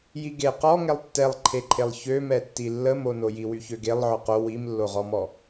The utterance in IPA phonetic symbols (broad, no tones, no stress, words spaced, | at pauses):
jiɡe qɔ ŋɛlˠtːɛlˠǃʰeǃʰelˠ çømɛtːi lːəmono jiwyçøɡelˠ ʕɔqo wimlːoʁɔmɔ